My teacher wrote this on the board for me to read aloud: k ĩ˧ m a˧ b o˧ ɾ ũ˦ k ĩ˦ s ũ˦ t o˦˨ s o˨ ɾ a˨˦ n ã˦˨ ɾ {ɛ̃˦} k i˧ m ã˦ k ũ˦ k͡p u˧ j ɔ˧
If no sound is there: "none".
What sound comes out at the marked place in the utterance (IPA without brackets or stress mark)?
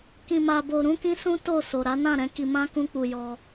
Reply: ɛ̃˨˦